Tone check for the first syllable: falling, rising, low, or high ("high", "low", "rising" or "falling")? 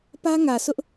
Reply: high